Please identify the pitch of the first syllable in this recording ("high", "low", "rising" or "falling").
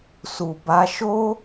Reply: low